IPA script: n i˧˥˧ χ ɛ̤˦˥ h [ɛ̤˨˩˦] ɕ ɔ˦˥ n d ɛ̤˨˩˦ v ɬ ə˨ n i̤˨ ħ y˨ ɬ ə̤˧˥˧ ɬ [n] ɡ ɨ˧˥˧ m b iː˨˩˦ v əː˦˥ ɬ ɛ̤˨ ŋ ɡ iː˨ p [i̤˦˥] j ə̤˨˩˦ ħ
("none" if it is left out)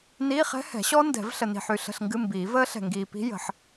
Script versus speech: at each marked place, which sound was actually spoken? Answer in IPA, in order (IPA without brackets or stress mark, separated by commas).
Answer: ɛ̤˨˩˦, ŋ, i̤˦˥